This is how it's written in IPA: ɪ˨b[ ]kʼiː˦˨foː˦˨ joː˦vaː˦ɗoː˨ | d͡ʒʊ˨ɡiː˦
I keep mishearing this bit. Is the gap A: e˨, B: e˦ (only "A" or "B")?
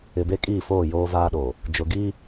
B